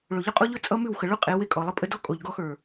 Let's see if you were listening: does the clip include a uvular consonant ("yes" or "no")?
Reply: yes